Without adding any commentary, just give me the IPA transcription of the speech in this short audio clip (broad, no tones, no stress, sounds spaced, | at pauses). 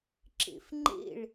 ǁ ḛ f ŋ͡ǃ ḛ ɭ